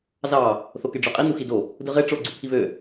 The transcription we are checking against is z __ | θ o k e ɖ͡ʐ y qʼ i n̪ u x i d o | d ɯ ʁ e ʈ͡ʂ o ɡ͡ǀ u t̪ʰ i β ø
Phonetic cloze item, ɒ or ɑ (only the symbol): ɑ